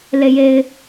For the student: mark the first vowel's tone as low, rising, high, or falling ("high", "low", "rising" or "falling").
low